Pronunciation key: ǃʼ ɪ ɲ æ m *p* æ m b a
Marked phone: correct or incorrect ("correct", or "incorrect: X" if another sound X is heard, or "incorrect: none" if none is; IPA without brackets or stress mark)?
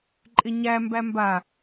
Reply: incorrect: b